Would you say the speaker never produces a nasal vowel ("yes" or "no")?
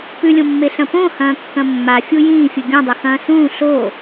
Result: no